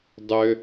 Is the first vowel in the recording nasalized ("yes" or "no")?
no